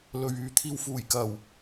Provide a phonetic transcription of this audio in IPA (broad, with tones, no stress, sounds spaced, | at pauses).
l ɵ˨ ɥ yː˨ t̪ʰ iː˨ w f uː˨˩ j k ɐ˨˩ w